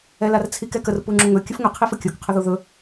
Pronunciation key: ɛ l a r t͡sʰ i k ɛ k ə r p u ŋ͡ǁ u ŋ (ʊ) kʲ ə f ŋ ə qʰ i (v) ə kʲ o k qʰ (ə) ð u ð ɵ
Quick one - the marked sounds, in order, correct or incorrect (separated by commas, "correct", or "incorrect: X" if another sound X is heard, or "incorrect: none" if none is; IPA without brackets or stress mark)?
incorrect: ɵ, incorrect: f, correct